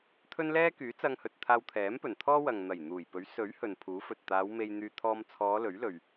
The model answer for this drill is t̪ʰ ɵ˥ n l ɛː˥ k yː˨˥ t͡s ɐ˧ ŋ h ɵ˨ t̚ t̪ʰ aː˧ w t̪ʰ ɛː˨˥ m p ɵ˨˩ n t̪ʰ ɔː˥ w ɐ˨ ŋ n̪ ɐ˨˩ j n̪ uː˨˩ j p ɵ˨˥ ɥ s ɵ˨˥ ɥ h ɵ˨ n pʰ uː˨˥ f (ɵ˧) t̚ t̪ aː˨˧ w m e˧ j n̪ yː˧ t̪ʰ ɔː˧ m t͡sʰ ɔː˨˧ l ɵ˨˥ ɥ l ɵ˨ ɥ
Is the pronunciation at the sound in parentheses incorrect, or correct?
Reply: incorrect